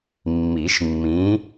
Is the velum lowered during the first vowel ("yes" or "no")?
no